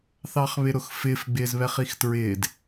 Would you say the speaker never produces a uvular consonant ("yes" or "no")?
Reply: no